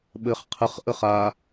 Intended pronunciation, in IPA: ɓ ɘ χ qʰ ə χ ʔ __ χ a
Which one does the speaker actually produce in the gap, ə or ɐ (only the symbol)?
ə